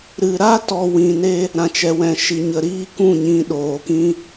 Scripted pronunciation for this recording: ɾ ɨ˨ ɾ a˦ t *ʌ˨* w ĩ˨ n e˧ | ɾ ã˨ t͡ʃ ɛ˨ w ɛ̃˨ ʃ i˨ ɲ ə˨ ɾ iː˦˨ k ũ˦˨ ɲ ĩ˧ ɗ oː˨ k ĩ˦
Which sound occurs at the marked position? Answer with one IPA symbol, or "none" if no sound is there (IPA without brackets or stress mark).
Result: ɔ˨